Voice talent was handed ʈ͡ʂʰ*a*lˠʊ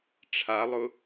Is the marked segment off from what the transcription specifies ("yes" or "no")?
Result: no